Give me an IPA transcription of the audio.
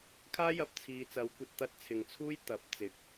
kʰ aː˥ j ɐ˨˥ p̚ t͡sʰ iː˨ t͡s ɐ˨˥ w kʷ ɐ˨˥ t̚ t̪ ɐ˧ t̚ t͡sʰ ɪ˨ ŋ t͡sʰ uː˥ j t̪ ɐ˨˥ p̚ t͡s ɪ˨˥ k̚

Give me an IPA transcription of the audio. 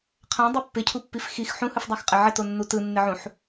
qʰ ã dˤ ɯ pː ɪ cʰ u pː i f x i x ħ ũ h ɯ f dˤ a x qʼ ɪ ʕ ɪ t o nː u t ɯ nː ɪ ʕ ũ ħ

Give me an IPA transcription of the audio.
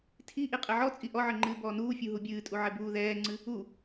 tʰ i ʔ i qʼ ɛ ʕ ɔ t͡sʼ i ʔ ɔ ʕ ɘ ŋ͡ǃ ɨː b ɔː n uː fʲ u ɦ u bʲ ɨː tʼ u ʕ ɛ b uː ð ɛː ŋ͡ǀ ɨ | u

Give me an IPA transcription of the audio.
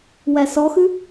w æ s ɔ x ʉ

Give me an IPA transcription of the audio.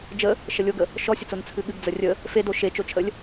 d͡ʒ ə | ʃ ə lʲ o ɡ ə | ʃ ɔ sʲ ə t͡s o n t͡sʰ ɨ ɠ ɨ ɡ d͡z ə rʲ ə | f e d o ʃ e t͡ʃ o t͡ʃʰ ə lʲ

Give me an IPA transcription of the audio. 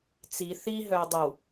t͡s i θ i ɦ œ ɐ̯ dˤ ə w

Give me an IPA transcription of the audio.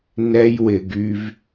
n ɛ˦ j w ɪ˧ ɡ y˦ v

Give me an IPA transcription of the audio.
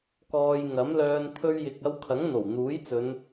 k ɔː˧ j ŋ ɐ˨˥ m l œː˧ n t̪ʰ ɵ˥ ɥ j ɪ˧ k̚ ɐ˥ w kʰ ɐ˨˥ ŋ n̪ o˨˩ w n̪ uː˨˥ j t͡s ɵ˨˧ n

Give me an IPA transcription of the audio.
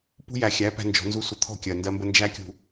p ṳ˦ j æ˨ xʲ æ˨˦ p æ̤˦ n d͡ʒ ɔ̤˨˦ n z u˦ sʷ ə˨ t̪ʰ ɔ̤˦˨ kʲ ɜ˨ n d ɜ˦ m b ə˦ n d͡ʒ æ˦ kʲ ṳ˨

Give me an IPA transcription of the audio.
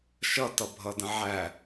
ʃ ʌ t ʌ bʱ ʌ d ə̃ ʕ æ

